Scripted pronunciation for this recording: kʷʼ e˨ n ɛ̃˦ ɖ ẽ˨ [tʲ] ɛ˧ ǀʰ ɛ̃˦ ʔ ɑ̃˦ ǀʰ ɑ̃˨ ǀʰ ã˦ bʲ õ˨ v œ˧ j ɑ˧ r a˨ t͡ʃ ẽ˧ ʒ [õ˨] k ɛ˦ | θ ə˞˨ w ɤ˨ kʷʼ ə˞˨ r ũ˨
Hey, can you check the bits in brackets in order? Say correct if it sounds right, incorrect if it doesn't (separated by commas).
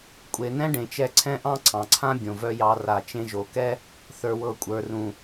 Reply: incorrect, incorrect